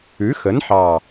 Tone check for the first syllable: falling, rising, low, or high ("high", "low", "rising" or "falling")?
rising